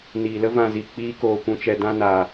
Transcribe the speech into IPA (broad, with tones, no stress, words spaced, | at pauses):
niː˨lə˦ vã˧zi˨k͡piː˦ koː˨kʷũ˨t͡ʃɛ˨ dã˦naː˨